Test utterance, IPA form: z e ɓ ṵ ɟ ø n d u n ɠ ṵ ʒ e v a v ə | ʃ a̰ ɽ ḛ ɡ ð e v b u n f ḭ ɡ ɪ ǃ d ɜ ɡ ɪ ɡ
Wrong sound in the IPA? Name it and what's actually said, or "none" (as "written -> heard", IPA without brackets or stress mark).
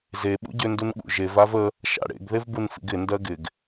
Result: ǃ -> n